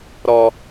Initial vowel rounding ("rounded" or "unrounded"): rounded